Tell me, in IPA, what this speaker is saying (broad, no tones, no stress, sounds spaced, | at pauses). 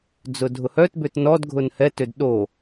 d͡z ʊ dʱ ʊ h œ t b ʏ t n ɔ d ɡʱ ʊ n h ɛ t ʏ d ɗ o